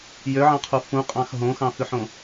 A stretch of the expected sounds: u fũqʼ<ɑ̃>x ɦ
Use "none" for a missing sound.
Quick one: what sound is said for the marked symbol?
ɑ̃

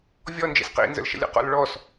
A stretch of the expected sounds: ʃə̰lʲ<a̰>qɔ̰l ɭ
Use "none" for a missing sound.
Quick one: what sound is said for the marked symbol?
ə̰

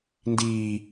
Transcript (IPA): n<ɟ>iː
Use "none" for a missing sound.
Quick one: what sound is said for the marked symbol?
d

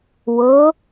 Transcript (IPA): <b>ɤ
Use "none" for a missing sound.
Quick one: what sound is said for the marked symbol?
w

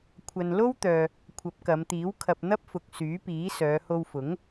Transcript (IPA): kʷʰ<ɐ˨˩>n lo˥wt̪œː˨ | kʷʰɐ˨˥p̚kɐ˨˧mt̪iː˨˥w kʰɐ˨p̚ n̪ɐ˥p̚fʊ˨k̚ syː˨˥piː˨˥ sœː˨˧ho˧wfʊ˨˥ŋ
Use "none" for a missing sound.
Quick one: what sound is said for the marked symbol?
ɐ˨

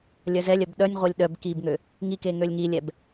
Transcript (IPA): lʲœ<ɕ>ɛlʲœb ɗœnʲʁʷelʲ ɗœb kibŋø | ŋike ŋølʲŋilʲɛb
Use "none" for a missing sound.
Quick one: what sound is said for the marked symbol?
z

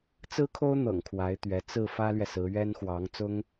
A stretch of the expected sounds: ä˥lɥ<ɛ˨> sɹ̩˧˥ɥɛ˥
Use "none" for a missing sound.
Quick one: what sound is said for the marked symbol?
ɛ˨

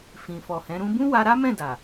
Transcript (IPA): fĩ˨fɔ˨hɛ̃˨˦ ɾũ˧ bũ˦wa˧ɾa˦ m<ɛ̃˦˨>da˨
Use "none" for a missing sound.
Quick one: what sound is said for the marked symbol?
ɛ̃˦˨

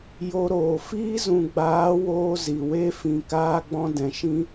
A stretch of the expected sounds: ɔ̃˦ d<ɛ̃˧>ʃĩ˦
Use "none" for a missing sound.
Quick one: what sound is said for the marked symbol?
ɛ̃˨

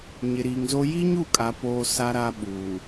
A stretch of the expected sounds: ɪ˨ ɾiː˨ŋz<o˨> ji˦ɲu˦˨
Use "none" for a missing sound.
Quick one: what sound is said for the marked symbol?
o˦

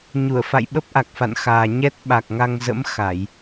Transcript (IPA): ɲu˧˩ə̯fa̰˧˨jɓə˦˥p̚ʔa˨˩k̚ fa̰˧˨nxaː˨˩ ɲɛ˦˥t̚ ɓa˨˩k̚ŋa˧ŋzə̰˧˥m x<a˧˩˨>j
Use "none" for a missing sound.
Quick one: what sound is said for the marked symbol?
a˧˩˨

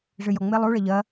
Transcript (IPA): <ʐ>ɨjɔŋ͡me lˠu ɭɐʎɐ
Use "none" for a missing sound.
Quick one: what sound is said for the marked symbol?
ʐ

